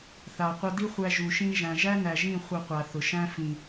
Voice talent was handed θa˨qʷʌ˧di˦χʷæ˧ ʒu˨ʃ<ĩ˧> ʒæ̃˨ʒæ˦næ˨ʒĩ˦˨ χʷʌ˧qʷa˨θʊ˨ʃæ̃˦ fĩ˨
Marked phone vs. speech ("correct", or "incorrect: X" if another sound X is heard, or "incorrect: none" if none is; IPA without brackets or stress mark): correct